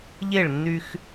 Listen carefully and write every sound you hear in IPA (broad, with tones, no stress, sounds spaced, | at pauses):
ʎ e˦˨ ɭ nː y˦ x